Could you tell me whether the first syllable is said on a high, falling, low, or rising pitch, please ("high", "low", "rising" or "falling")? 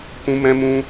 high